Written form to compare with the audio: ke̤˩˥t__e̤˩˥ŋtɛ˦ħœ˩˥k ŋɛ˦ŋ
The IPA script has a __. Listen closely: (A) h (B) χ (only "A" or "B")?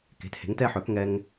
A